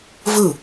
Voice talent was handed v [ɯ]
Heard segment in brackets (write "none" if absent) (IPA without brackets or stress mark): ɯ